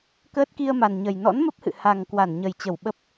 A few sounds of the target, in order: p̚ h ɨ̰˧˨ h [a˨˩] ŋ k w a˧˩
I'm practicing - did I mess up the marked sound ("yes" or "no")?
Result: no